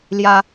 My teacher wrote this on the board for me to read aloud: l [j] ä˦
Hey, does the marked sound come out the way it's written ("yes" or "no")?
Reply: yes